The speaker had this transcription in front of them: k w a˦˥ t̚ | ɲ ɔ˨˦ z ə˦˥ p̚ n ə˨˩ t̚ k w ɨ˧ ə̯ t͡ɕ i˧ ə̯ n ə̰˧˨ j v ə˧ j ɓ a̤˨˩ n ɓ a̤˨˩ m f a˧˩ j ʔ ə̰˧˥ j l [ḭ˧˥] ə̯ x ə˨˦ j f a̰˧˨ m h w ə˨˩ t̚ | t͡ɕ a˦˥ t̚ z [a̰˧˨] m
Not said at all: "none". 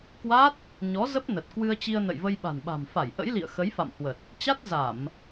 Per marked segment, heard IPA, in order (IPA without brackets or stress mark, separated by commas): ḭ˧˨, a˧˩˨